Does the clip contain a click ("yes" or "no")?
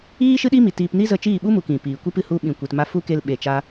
no